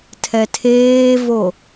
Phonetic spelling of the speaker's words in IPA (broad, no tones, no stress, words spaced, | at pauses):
tʰɛtʰeːvo